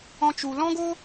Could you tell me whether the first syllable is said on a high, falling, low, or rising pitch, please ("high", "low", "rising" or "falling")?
high